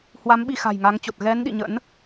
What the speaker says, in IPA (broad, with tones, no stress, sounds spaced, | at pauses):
h w a˨˦ m ɓ i˧ x a̤˨˩ j ŋ a˨˦ ŋ t͡ɕ o˨˩ t̚ ɣ ɛ˨˦ n ɗ ḭ˧˨ ɲ ə̰˧˥ n